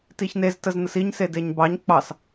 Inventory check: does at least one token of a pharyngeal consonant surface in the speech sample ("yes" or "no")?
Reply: no